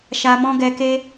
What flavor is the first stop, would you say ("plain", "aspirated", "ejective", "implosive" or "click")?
plain